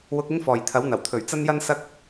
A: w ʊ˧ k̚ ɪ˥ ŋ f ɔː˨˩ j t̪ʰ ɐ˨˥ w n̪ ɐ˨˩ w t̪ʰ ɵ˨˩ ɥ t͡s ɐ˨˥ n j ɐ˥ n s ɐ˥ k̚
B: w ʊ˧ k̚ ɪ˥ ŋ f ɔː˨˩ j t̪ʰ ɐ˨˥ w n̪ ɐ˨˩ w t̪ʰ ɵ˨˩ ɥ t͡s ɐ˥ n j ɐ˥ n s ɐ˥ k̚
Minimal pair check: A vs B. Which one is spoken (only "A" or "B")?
B